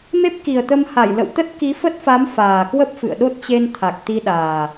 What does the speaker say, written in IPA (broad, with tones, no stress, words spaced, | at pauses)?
me˦˥p̚ki˨˩ə̯t̪ə˧mha˧˩j lə̰˧˨wt̪ə˦˥t̚ ki˨˦fə˦˥t̚fa˨˦m faː˨˩kwə˦˥p̚ fɨ̰˧˨ə̯ ɗo˦˥t̚t͡ɕe˧nt̪ʰa˨˩k̚ t̪i˧ɗaː˨˩